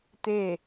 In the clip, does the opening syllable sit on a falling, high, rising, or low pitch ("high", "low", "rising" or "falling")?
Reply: falling